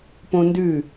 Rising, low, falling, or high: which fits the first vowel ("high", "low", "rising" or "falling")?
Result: high